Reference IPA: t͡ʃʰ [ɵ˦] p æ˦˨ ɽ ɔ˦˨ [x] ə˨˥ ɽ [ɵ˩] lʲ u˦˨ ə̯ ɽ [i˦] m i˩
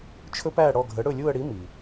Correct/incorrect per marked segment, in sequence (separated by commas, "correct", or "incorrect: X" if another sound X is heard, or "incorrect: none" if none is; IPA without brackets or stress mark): correct, incorrect: ɡʱ, incorrect: ɵ˦˨, incorrect: i˨˥